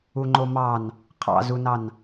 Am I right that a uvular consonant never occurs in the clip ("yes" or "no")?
no